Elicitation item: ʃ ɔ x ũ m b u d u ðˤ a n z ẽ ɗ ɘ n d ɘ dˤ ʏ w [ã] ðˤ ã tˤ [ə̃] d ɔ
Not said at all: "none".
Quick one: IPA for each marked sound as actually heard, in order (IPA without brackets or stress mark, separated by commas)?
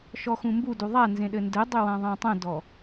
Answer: ã, ə̃